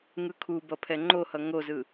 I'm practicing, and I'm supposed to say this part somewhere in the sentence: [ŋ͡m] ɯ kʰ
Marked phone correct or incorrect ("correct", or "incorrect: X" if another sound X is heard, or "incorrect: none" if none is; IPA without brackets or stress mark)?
incorrect: ŋ